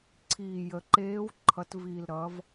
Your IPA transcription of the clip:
ǀʰ iː˨˩ j ə˩˧ ǃ eː˧˥ w ǃʰ ʌ˩˧ t v iː˨˩ l ɾ ʌ˩˧ v

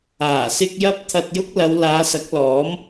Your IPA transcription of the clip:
aː˨˩ s ɪ˧ k̚ j ɐ˥ p̚ t̪ʰ ɐ˧ t̚ j ʊ˥ k̚ l ɐ˨˧ w l aː˨˧ s ɐ˨˥ k̚ l ɔː˨˥ m

